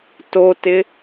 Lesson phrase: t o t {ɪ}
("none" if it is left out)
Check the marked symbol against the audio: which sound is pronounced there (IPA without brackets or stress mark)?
ɪ